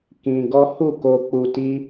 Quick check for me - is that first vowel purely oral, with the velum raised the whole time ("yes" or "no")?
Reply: no